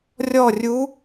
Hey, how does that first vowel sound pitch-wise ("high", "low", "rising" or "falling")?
falling